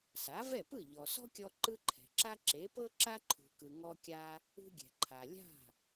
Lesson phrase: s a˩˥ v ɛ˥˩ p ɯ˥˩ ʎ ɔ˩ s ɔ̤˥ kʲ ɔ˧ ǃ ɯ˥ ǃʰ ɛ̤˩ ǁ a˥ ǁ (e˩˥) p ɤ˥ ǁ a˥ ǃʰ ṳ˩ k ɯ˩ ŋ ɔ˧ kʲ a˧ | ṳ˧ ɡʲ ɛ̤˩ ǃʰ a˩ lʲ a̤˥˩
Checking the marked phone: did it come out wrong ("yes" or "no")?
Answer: no